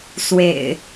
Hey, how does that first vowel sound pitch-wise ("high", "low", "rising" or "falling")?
low